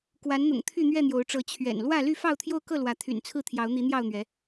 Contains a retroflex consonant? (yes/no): yes